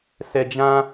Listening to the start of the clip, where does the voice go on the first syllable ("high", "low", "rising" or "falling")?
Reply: low